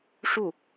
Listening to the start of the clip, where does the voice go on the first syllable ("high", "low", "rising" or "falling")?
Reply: falling